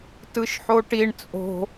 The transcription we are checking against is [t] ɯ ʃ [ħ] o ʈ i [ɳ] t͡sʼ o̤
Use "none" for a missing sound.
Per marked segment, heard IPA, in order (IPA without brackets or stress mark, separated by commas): t, ħ, ɳ